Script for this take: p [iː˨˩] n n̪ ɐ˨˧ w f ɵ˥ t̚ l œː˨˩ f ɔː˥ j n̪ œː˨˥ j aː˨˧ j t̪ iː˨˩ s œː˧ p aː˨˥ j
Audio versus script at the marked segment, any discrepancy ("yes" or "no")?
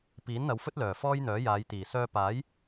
yes